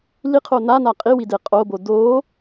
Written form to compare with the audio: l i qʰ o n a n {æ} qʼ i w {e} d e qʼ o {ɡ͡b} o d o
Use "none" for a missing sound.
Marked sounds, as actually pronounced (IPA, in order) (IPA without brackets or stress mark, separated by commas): a, i, b